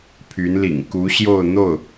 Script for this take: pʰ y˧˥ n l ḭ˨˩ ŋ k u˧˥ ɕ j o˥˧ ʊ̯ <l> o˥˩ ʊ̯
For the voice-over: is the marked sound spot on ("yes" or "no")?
no